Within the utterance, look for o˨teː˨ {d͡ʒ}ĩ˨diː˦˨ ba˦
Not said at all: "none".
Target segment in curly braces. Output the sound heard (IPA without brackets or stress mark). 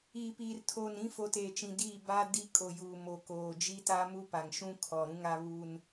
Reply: t͡ʃ